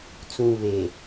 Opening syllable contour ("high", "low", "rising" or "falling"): low